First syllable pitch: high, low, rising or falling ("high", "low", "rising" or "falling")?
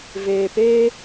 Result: low